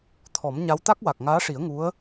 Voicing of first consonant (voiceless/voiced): voiceless